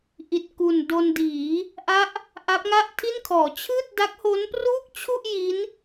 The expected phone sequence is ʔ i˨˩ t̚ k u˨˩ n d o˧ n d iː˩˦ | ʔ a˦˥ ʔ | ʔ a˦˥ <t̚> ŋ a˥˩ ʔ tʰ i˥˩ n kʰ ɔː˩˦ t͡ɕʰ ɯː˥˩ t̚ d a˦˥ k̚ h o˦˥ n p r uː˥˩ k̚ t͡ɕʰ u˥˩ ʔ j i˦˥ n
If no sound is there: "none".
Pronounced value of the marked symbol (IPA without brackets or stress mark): p̚